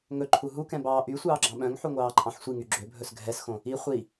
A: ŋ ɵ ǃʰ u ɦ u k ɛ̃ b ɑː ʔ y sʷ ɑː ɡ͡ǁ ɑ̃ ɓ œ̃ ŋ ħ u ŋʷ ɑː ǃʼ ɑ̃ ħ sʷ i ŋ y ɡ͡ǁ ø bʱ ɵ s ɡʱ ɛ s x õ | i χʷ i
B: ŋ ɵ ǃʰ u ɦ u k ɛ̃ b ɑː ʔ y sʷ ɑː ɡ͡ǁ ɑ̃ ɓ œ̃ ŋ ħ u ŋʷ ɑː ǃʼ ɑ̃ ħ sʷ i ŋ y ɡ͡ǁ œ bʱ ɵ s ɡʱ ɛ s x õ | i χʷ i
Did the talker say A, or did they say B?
A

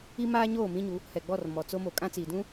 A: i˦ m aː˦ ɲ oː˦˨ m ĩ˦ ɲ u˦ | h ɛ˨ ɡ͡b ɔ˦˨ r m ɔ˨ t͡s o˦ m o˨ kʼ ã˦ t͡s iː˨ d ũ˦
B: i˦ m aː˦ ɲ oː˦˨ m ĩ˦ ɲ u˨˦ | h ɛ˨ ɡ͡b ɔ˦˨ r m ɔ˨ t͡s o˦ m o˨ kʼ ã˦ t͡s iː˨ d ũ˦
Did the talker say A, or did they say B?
B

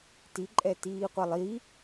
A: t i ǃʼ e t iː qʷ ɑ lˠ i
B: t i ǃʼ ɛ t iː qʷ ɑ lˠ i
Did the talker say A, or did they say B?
B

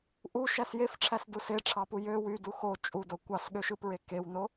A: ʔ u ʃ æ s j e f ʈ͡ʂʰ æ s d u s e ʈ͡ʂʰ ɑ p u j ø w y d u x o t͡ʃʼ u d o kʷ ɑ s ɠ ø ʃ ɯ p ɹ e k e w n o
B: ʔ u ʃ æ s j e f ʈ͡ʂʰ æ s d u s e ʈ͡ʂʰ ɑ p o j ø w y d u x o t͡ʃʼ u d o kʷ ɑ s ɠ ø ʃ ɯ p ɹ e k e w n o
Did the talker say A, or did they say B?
A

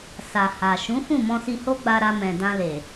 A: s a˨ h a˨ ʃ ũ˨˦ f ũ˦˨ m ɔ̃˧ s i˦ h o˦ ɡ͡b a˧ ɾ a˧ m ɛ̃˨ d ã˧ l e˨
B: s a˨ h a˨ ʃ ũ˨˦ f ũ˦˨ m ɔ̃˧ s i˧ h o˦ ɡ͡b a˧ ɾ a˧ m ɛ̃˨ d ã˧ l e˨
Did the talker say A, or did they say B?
B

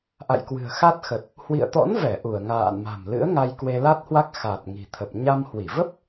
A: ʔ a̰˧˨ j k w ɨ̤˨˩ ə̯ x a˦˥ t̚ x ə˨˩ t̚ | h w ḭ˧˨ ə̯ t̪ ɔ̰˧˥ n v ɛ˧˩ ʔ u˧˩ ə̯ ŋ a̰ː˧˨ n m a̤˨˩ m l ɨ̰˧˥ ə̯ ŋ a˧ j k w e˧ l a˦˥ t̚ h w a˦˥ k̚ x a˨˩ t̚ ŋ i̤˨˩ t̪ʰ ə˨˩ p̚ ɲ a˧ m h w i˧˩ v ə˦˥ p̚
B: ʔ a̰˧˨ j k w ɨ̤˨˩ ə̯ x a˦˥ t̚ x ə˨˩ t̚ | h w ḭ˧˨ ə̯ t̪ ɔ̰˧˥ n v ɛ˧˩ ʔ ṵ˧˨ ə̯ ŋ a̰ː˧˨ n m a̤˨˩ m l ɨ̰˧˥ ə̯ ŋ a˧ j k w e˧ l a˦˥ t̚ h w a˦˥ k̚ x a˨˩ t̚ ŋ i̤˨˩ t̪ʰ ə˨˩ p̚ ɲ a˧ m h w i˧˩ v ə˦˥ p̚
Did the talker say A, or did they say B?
A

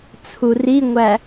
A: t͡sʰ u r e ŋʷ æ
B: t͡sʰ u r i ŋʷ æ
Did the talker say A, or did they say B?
B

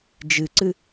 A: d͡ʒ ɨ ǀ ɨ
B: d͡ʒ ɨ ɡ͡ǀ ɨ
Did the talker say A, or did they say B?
A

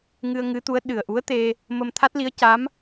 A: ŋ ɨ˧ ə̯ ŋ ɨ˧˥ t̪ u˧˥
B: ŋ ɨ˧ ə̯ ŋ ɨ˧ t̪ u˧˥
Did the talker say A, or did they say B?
A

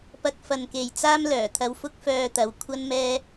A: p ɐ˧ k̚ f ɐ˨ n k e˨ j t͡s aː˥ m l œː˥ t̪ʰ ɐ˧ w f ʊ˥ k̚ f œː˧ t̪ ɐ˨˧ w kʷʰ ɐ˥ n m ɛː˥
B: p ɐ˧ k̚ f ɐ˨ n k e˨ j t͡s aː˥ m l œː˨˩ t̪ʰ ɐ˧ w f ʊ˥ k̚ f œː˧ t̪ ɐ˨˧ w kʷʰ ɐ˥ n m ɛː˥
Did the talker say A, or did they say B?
B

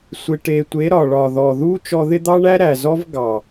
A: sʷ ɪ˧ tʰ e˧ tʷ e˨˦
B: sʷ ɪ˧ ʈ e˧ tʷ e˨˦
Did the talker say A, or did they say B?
B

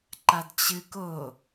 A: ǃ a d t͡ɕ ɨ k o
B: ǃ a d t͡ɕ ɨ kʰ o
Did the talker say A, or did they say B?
A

